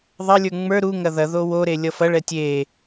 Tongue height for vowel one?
low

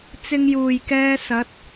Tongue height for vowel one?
high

